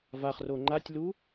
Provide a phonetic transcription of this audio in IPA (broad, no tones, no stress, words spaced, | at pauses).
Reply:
vaχro ŋ͡ǃatʲlu